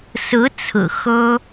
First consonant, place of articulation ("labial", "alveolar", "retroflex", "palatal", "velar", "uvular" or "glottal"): alveolar